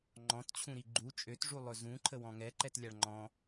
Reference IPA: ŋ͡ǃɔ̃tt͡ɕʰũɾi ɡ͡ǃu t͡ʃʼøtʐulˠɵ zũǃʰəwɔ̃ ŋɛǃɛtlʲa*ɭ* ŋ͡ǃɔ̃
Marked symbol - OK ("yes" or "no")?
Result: yes